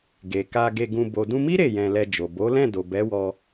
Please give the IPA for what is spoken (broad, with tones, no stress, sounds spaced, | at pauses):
ɡ e˨ k a˧ ɡ e˧ ɡ ũ˧ b o˨ d ũ˧ m i˦ ɾ e˦˨ j ɛ̃˧ l ɛ˧ d͡ʒ o˨ b o˨˦ l ɛ̃˦˨ d o˨ b ɛ˨˦ w ɔ˧